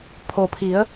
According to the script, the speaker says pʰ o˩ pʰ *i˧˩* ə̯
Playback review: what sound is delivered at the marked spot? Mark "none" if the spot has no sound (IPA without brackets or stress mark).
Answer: i˩˧